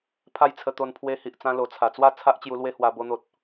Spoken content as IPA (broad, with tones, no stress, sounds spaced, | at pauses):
pʰ a˦ j t͡sʰ ə˧ t̪ o˧ n pʰ w e˧ h i˨ ʔ t͡s ã˧ l o˨˩ t͡sʰ a˨˩ t͡s w a˥˧ t͡sʰ a˦ ʔ t͡ɕ j u˧ l w e˦ h w a˧ b o˧ n̪ o˨ t̚